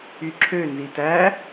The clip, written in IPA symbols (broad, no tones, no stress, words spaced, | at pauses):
yǁʰø nzitæ